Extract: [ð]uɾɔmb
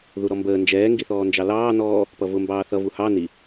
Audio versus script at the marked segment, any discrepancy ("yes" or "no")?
no